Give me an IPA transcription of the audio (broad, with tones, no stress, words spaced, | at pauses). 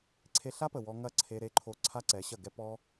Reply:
ǀʰe˧ɬa˦pə˨ wɔ˧ ŋɐ˦˨ ǀʰe˦ɾe˦ǃʰo˦˨ ǀʰa˦ǀɛ˨˦ɕɐ˦˨ɡɛ˦ pɔ˦